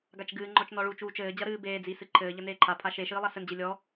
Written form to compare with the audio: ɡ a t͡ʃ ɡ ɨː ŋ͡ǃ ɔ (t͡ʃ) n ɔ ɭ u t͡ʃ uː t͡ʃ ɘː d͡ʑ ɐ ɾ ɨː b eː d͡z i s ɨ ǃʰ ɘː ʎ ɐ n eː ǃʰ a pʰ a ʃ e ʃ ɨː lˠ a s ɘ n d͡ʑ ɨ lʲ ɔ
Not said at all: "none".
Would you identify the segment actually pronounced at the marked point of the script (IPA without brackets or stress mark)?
t͡ʃ